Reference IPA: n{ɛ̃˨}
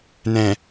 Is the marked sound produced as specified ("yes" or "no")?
yes